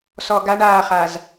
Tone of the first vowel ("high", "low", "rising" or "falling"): low